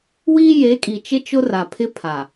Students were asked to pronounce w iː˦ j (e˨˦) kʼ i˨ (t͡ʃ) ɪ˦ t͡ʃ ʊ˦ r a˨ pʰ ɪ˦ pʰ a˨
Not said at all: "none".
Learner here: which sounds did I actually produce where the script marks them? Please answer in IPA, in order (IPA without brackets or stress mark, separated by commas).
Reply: e˨˦, t͡ʃ